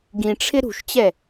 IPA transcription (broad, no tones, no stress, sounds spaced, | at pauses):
ɡ ĩ ʈ͡ʂʰ ɪ ɾ ṳ ʃ t͡ɕ ɛ